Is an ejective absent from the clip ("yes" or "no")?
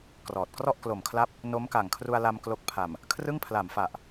yes